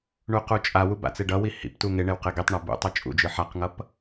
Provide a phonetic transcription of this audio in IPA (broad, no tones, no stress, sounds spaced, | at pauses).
ɳ u q u t͡ʃʼ a w u b a̰ t͡s e ɖ ʌ w i h ḭ p t u ŋ e ɳ e w q e ɡ i tˤ ɳ a b ṵ tˤ ɯ t͡ʃʼ ṵ d͡ʒ ɯ ħ a q ŋ ʌ p